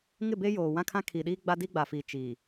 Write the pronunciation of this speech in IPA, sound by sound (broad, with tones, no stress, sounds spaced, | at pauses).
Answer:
ŋ ɪ˦˨ b e˦ j oː˨ w ã˦ kʰ ã˦ kʰ iː˨ ɗ iː˦ ɡ͡b a˦ d i˦ ɡ͡b a˨ f iː˨ t͡ʃ i˨